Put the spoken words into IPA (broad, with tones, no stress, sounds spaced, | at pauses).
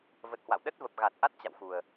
v ə˨˩ t̚ h w a̰˧˨ w ɗ ə˦˥ t̚ v ə˨˩ p̚ ɣ a˨˩ t̚ ʔ a˦˥ t̚ t͡ɕ a̰˧˨ w x u˨˩ ə̯